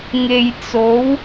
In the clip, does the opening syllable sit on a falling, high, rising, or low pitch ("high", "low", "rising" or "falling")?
low